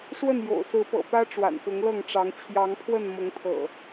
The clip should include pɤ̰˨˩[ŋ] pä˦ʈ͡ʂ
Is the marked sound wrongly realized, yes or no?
yes